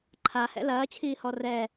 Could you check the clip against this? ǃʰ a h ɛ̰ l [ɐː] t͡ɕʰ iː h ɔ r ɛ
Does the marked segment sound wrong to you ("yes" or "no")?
no